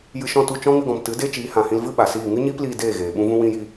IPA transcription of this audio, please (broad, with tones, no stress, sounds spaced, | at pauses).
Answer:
j ɨ˧ ʃ ɔ̃˦˨ t u˦˨ t͡ʃ ɔ̃˦ ŋ ɨ˧ ɡ ɔ̃˨ m t ɨ˨˦ d e˦ t͡ʃ iː˨˦ h ã˨ h ĩ˧ l v ɨ˦ ɓ a˨ s iː˦˨ ŋ ɨ˦ ɲ iː˦ p l iː˧ d eː˦˨ ɣ eː˨ ɓ ũ˦ v ũ˦ w ĩ˦ j i˦